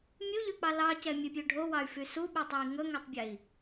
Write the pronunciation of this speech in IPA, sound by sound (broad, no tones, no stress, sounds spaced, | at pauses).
mʲ u ʎ ø k͡p ɑ l ɑ c ɛ mʲ ø pʲ ø ɖʱ o w ɑ y̯ f y s u ɓ u tˤ ø i̯ ŋ ɵ ŋ ø tˤ bʲ ɛ i̯